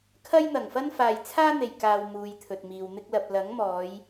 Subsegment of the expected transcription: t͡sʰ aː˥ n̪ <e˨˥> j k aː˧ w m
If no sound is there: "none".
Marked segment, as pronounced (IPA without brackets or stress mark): e˨